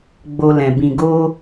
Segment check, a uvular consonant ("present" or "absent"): absent